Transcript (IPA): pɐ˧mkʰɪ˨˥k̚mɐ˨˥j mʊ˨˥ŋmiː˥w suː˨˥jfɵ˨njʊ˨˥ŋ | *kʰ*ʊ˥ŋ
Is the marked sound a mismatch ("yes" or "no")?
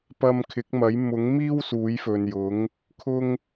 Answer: no